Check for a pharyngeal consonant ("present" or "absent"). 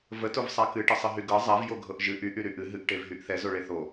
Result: absent